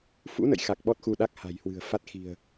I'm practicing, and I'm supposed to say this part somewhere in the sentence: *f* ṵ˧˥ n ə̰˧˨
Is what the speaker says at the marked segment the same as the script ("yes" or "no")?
yes